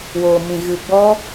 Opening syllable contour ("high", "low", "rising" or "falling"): low